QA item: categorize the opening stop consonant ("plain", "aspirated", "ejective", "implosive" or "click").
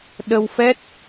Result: implosive